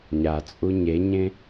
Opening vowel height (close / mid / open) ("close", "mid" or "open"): open